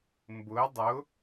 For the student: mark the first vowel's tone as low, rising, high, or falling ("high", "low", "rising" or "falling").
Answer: rising